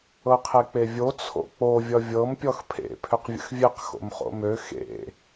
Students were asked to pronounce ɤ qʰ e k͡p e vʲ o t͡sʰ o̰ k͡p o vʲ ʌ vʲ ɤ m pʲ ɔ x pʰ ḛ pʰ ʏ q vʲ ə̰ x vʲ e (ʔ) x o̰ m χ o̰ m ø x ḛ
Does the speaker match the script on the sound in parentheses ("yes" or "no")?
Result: no